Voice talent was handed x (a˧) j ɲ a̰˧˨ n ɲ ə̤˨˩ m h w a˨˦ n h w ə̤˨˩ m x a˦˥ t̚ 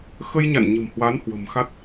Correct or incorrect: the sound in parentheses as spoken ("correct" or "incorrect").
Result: incorrect